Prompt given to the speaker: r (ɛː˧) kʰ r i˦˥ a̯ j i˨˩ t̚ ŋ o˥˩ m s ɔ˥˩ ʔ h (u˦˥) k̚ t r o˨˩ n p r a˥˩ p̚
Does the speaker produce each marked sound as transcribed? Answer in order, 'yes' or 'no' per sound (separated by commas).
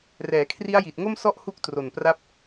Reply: no, yes